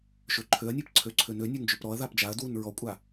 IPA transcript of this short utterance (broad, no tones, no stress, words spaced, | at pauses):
ʃøǃʰøɐ̯nʲap ǀʰøǀʰønønʲøn d͡ʒøpɾɔɐ̯ðap d͡ʒaɐ̯dwun ɹɔkʷʼa